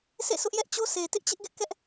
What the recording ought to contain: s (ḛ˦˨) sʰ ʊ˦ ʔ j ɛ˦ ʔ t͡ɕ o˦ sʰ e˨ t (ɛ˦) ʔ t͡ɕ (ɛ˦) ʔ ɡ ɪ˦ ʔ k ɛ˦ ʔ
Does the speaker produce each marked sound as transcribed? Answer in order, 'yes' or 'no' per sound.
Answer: yes, no, no

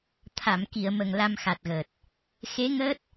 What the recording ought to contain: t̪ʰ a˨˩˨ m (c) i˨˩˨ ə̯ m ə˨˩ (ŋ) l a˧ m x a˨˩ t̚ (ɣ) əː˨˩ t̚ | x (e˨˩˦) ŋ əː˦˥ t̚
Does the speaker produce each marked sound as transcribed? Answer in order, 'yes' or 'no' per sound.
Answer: no, yes, yes, no

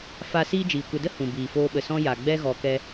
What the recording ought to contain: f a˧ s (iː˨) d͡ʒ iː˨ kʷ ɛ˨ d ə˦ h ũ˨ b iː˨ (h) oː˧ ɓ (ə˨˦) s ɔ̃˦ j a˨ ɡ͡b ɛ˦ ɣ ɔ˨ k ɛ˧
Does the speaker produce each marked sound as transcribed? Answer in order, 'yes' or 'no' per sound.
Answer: no, no, no

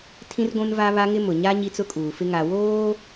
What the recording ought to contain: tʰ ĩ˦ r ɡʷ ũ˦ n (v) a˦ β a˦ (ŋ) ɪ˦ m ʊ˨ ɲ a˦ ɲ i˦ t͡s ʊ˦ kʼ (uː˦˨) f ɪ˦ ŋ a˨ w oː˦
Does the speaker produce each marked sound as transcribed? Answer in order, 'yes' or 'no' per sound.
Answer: yes, yes, no

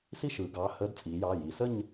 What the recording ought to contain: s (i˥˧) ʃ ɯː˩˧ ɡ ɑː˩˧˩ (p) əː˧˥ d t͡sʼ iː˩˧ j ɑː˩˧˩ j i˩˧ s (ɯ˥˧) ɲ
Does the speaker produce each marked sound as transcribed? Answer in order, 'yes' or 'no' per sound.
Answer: yes, no, no

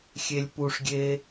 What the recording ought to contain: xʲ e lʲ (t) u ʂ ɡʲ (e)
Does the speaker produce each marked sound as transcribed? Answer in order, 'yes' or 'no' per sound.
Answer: no, yes

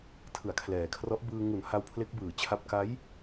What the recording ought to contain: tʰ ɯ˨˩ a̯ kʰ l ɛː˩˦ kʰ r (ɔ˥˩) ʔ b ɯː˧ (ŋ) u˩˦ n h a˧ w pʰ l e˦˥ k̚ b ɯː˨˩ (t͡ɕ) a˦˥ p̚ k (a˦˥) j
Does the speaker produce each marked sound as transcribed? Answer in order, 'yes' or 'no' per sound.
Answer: no, yes, no, yes

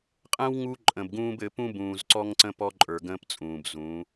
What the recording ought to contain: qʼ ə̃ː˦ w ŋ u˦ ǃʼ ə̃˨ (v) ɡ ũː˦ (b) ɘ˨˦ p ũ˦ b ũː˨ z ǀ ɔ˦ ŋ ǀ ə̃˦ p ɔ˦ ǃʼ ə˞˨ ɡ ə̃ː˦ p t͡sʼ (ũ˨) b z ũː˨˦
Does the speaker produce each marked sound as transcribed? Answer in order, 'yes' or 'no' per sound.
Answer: no, yes, no

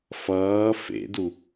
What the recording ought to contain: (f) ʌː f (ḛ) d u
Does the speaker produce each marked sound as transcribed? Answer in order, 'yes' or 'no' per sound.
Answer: yes, yes

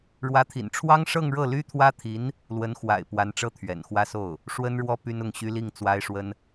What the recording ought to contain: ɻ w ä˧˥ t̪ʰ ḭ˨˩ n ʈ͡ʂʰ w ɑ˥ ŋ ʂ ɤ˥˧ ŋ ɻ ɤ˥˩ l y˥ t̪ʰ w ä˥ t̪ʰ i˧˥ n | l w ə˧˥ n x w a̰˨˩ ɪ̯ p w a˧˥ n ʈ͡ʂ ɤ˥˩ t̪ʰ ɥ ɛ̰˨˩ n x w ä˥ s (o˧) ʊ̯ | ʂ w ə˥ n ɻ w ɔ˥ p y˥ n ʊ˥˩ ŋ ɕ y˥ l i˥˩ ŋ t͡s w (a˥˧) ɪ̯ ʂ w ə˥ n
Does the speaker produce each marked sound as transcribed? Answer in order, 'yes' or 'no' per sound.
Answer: no, no

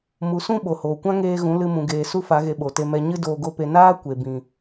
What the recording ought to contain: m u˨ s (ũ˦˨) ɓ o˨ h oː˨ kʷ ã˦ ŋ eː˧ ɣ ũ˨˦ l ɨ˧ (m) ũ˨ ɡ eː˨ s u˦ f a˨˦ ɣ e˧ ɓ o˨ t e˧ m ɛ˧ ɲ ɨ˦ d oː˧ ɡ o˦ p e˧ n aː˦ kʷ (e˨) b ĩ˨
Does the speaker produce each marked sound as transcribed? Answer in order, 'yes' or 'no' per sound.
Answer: yes, yes, yes

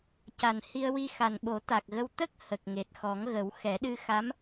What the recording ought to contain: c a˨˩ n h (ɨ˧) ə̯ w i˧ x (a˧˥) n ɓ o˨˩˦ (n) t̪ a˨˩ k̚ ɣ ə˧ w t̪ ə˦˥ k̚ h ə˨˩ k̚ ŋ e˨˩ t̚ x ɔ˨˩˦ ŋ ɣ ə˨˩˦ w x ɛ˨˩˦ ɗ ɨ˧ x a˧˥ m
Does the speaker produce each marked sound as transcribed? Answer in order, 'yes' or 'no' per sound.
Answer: no, no, no

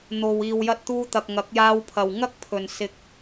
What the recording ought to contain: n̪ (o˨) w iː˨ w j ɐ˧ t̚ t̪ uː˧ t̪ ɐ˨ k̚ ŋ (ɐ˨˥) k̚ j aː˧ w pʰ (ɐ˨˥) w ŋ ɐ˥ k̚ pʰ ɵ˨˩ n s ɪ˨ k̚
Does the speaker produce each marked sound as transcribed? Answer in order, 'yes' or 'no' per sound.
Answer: yes, yes, no

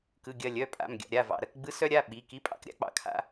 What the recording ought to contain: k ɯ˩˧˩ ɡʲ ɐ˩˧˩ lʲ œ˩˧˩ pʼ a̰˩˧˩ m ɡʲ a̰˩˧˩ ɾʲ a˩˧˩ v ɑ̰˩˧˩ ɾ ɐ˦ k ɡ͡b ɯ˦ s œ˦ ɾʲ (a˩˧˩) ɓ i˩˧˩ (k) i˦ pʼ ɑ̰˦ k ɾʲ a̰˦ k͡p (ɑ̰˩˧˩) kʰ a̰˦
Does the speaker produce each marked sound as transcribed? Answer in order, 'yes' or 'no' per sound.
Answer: yes, yes, yes

